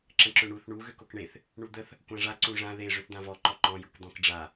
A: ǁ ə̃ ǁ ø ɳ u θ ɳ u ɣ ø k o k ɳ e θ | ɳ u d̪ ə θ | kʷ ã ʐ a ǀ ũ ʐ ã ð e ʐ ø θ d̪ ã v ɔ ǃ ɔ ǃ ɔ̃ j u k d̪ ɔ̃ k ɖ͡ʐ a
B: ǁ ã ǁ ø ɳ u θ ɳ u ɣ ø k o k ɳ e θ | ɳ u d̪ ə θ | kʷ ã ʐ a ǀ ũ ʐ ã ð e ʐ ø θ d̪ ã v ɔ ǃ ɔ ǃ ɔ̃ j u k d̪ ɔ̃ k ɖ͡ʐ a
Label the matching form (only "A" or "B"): A